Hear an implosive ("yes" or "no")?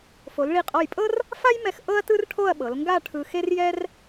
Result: yes